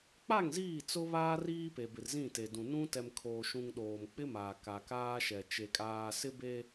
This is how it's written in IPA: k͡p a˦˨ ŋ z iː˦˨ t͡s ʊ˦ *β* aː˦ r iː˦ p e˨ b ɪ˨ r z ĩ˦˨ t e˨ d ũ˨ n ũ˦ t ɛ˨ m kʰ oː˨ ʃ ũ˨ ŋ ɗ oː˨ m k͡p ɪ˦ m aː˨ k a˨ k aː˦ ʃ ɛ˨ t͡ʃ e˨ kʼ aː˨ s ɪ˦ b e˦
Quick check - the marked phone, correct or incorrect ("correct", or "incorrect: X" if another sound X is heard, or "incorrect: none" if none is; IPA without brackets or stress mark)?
correct